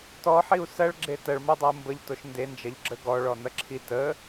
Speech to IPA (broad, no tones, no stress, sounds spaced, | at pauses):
t ɔ ħ i u̯ s ɐ ɭ ɡ͡ǁ e t ɐ ɭ m o dˤ ɐ u̯ m b ə ʎ t o ʃ n d e n d͡ʒ ɐ ʎ ɡ͡ǁ ə ɡ ɔ ɭ ɔ n ɐ ǁʰ i t ə